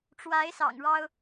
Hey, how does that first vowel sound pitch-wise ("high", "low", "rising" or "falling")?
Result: rising